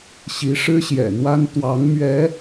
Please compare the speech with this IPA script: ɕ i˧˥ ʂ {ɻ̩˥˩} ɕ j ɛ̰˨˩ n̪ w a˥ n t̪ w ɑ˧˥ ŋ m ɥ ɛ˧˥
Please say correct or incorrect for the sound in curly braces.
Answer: incorrect